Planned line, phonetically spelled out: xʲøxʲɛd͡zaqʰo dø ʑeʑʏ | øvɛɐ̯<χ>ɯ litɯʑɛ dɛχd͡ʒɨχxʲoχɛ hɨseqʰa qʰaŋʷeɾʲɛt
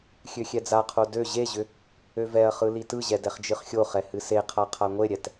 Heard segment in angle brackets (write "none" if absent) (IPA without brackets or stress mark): χ